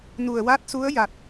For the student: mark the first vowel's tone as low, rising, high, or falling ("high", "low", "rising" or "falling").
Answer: low